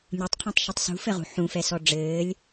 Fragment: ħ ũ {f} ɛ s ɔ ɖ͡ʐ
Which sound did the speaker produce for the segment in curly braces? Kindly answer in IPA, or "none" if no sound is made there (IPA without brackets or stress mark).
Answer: f